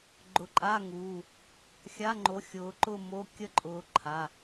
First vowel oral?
yes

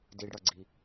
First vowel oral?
yes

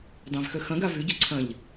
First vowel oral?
no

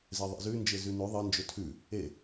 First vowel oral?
yes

